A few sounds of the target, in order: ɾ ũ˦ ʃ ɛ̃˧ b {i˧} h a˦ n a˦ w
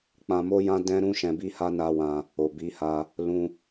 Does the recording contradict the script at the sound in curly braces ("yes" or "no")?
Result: yes